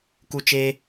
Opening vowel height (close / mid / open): close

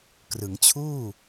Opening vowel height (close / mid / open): close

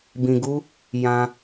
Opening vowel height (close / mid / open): close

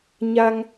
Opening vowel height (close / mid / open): open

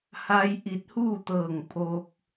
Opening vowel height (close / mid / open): open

